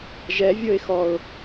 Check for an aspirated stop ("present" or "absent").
absent